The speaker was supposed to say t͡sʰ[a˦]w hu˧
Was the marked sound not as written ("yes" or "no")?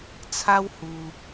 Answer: no